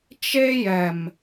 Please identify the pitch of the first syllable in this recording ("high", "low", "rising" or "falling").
high